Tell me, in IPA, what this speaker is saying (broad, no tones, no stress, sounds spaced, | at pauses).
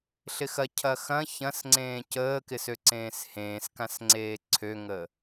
ɬ ɪ x ɐ cʰ ɐ x ɐ̃ ç ɐ̃ s ŋ͡ǀ ẽː c əː k ɪ s ø ǀ ẽː s h ẽː s k ã s ŋ͡ǀ eː ǀʰ ø ŋ ə